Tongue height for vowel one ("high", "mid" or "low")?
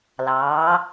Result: low